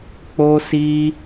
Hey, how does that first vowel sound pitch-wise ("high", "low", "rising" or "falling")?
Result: high